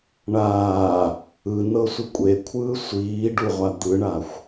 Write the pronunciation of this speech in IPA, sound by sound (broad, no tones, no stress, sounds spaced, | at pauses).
ɳ aː | ɯ n ɤ sʷ ɯ kʷʼ e kʷʰ ɯː sʷ iː ɖ u ʁʷ a d̪ ɯ ɳ a xʷ